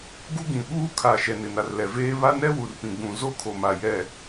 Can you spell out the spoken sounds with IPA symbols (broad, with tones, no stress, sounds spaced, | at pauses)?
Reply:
ɡ u˦ ɡ ĩ˨ ɓ uː˦ kʰ a˨ ʃ ɛ˨ n ɪ˨ n a˨ r l ɛ˨ v eː˦ β a˦ n ɛ˦ w u˨ r p ĩ˨ ɡ͡b ũ˨ z o˦ kʰ o˨ m a˨ j ɛ˨